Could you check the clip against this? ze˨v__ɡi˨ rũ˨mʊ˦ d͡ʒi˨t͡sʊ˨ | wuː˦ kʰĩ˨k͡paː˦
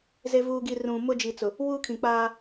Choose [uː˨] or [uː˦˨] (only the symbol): uː˨